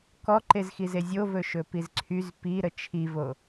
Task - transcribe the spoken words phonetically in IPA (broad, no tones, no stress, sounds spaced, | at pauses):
k ɔ ǃ e z x i z e zʲ o v ɵ ʃ ɵ p i z ǀʰ y z p i ɾ ə t͡ʃʰ i v o